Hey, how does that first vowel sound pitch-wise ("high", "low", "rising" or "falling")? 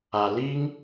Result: low